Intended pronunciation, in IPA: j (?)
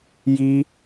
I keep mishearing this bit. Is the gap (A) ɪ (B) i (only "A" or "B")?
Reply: B